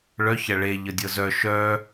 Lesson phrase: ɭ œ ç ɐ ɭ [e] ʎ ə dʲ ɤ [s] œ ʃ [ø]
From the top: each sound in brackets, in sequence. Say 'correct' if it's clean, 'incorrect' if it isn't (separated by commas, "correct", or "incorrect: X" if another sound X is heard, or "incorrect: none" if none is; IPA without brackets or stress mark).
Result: correct, incorrect: z, incorrect: œ